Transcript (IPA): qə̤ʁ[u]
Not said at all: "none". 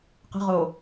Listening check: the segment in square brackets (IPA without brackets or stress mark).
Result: o